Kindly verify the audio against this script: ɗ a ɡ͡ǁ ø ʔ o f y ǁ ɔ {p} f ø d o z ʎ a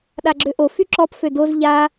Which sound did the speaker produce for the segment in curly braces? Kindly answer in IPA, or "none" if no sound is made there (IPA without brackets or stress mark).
p